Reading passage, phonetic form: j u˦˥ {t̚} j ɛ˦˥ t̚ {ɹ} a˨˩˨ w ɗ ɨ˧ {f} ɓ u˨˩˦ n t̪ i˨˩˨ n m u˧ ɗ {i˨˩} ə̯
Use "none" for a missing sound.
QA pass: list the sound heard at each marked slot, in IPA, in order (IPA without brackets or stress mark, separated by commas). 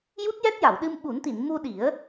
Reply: t̚, j, m, i˨˩˦